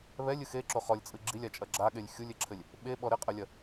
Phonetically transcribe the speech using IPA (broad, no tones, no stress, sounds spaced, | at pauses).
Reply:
β ɛ lʲ ɨ x e ǁ o χ ɔ lʲ t͡sʼ ɨ ɡ͡ǁ i lʲ a t͡ʃʼ ɐ ɡ͡ǁ a ɠ e lʲ xʲ u lʲ e ǁʰ ɘ lʲ | ɓ e ɓ ɔ ɾ ɘ qʼ ɐ lʲ ɐ